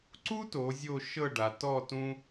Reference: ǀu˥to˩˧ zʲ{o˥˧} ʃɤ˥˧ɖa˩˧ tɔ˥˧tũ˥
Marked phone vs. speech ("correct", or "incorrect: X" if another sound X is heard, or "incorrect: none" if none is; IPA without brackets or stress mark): correct